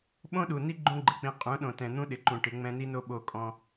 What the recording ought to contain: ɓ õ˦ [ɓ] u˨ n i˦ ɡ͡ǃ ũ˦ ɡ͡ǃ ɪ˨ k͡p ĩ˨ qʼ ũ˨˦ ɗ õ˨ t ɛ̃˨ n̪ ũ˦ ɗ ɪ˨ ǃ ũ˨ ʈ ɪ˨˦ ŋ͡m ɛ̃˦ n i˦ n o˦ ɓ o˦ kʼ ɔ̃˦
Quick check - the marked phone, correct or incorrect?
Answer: incorrect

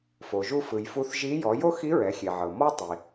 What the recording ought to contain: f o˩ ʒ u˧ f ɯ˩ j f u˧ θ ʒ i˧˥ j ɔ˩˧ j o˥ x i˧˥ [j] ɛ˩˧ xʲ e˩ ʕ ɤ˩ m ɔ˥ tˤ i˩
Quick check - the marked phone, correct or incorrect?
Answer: incorrect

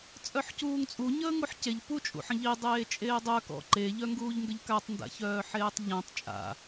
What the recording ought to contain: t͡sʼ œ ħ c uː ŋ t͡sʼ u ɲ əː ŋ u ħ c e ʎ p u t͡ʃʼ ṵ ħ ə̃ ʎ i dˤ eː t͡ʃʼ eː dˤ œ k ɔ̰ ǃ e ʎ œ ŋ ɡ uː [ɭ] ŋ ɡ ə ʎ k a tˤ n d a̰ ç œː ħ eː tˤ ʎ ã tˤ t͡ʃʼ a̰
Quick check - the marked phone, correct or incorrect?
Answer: incorrect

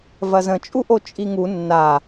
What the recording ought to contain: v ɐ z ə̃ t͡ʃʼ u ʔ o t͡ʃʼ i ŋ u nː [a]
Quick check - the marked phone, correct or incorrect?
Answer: correct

